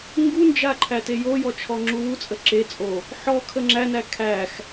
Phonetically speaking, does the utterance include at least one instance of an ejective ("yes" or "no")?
yes